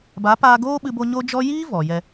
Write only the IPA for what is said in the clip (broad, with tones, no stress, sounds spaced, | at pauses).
b a˨˦ p aː˧ ɡ oː˦ ɓ ɨ˧ b o˧ ɲ o˦ d͡ʒ ɔ˦ j iː˦ v ɔ˨ j ɛ˧